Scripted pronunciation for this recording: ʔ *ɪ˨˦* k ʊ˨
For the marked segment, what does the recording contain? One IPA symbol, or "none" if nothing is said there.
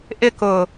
ɪ˨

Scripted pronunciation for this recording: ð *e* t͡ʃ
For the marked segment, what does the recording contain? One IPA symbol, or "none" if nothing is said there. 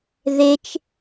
e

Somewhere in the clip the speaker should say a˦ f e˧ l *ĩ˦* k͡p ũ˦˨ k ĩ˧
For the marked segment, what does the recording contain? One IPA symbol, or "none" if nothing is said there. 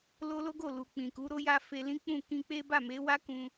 ĩ˦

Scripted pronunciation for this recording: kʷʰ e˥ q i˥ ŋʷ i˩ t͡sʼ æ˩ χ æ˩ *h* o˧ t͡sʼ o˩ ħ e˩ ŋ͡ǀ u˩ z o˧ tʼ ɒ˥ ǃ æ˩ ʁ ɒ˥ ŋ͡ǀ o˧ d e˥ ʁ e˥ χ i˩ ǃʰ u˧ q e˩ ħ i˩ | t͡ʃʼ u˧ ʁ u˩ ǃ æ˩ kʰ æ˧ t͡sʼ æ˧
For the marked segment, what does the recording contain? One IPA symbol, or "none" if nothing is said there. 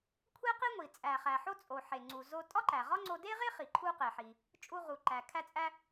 ħ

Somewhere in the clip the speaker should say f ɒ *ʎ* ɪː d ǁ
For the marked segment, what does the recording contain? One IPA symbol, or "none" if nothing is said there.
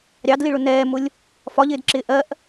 ʎ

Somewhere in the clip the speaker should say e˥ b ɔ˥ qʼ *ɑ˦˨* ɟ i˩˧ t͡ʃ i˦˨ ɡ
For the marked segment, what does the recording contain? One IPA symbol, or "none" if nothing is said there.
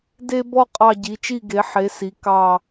ɑ˦˨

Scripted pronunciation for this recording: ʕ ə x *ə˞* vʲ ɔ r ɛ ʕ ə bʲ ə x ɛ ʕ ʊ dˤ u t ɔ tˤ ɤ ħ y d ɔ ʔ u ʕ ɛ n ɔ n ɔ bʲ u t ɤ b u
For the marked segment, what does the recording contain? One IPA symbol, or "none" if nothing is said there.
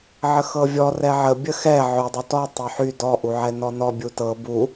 ɤ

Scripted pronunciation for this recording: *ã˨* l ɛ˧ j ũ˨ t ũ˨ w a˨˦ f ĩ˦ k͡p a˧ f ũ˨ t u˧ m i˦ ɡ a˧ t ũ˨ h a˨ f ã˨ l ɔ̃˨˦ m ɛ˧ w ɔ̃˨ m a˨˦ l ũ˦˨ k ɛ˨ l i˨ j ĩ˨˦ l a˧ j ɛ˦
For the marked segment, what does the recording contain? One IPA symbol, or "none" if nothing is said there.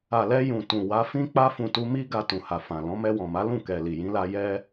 a˨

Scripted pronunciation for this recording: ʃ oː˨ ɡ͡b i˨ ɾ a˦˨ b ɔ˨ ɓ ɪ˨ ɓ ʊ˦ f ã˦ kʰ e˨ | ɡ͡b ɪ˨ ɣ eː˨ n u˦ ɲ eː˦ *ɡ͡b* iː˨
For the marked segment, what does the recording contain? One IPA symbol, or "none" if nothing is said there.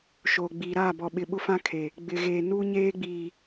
ɡ͡b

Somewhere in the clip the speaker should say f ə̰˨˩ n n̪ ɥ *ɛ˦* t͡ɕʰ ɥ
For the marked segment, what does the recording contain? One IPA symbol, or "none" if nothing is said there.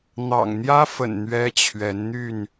ɛ˦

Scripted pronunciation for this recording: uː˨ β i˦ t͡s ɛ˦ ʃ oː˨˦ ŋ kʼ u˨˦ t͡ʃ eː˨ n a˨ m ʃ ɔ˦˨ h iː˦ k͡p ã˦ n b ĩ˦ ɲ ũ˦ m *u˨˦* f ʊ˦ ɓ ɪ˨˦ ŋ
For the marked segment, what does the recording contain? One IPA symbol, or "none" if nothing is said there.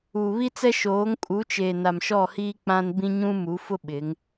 u˨˦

